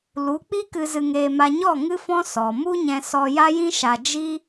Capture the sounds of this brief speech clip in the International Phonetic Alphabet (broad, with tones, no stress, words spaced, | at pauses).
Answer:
lu˨˦k͡pi˦ kɨ˧zɨ˧ŋeː˧ ma˧ɲɔ˦˨ ŋɨ˦fɔ̃˦ sɔ˨ mu˦ɲɛ̃˧ sɔ˧ja˦jĩ˦ ʃa˧ d͡ʒi˦